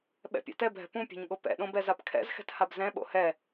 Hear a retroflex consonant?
no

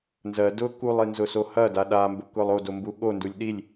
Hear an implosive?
yes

